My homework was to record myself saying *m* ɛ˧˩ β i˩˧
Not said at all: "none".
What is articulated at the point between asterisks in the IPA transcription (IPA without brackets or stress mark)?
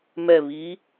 m